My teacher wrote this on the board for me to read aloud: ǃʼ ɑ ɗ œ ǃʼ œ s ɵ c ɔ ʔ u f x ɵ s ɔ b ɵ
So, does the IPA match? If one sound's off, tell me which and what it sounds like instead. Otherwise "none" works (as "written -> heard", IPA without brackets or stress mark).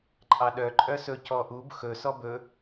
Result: f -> b